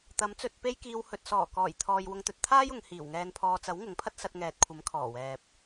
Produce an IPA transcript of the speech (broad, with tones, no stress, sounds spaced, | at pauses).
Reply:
t̪ ɐ˨˥ m t͡s ɵ˧ t̚ p e˥ j k iː˧ w h ɵ˨ t̚ s ɔː˨˩ k ɔː˨˩ j t̪ʰ ɔː˨ j w ʊ˧ ŋ t̪ ɵ˨ t̚ t̪ʰ aː˥ j ʊ˨˧ ŋ h iː˨˩ w ŋ ɛː˧ n pʰ ɔː˧ t͡s ɐ˨˥ w ŋ ʊ˨˥ ŋ pʰ ɐ˥ t̚ s ɐ˧ t̚ ŋ ɛː˨ t̚ kʷʰ ɐ˨˥ m kʰ ɔː˨˩ w ɛː˨ p̚